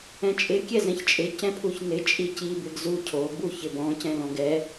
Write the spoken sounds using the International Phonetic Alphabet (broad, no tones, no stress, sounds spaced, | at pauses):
ɛ̃ t͡ʃʼ ɪ kʲ ɛ z ɛ̃ ç t͡ʃʼ ɪ c ɛ̃ pʰ u ç n ɪ t͡ʃʼ i c i b ɪ ɡ z u cʰ o b u ç ɪ b ɔ̃ c ɛ̃ l ɔ̃ ɡ ɛ